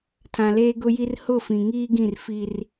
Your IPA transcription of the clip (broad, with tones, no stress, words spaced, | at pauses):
tʰã˨leː˦ɡʊ˦ji˦r hʊ˦˨fĩ˨ŋiː˦ɡĩ˦˨r fi˦r